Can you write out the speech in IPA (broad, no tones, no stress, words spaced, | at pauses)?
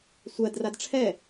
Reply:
sʷɜdrad ʈ͡ʂʰɛ